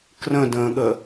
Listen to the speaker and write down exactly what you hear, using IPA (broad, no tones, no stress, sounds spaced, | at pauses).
k r ə̃ d ə̃ː ɠ ə